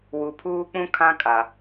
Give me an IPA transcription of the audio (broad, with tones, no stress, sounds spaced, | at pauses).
w u˨ pʰ uː˦ k͡p ũ˦ kʰ ã˦ kʼ a˨